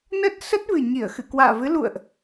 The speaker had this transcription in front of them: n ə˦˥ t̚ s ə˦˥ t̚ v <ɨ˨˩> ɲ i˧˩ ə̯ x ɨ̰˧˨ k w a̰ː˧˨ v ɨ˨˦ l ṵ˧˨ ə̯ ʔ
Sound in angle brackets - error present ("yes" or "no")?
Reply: no